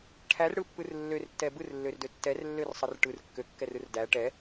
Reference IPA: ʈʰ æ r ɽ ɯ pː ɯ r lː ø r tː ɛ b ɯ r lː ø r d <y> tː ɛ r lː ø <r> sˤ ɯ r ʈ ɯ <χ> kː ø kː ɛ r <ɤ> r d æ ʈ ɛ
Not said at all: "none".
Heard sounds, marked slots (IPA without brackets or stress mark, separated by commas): ø, r, r, ɯ